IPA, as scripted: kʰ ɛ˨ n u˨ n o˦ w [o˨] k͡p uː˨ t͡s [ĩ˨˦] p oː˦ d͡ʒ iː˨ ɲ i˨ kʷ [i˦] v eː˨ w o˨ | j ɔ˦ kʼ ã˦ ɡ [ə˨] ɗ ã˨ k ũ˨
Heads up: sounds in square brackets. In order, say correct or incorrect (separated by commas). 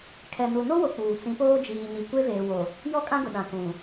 correct, correct, incorrect, incorrect